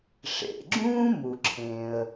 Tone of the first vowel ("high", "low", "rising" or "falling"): low